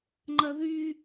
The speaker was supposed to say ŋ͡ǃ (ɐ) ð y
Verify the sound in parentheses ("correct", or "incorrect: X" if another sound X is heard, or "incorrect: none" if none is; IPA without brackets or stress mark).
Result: correct